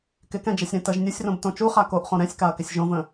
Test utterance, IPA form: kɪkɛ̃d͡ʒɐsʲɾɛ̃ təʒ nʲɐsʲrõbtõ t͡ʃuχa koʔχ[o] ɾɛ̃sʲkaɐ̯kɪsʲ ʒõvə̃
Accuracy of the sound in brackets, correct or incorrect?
incorrect